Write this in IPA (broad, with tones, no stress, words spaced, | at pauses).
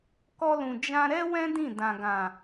kɔ˧lũ˨ d͡ʒã˧ɾɛ˦wɛ̃˦ dĩ˦˨dã˨ɡã˨